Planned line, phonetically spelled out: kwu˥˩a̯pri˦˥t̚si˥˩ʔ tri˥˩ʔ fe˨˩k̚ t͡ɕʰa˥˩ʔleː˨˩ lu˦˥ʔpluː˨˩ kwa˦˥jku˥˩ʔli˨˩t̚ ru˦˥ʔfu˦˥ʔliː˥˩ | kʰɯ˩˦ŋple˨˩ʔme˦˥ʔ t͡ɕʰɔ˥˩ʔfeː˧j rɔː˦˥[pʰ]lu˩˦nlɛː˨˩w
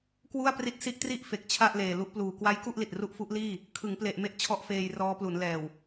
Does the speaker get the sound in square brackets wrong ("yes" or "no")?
yes